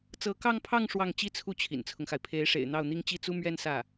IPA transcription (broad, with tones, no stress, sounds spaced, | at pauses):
t͡s ɤ˧˥ k ɑ˥˧ ŋ pʰ ɑ˥˧ ŋ ʂ w ɑ˥˩ ŋ t͡ɕ i˥ t͡sʰ u˥˩ t͡ɕʰ ḭ˨˩ n t͡sʰ ʊ˦ ŋ x a˩ ɪ̯ pʰ e˧˥ ɪ̯ ʂ ḛ˨˩ ɪ̯ n̪ ɑ˥˩ ʊ̯ n̪ i˥ ŋ t͡ɕ i˥ t͡s u˥ m ɥ ɛ˥ n s ä˥˩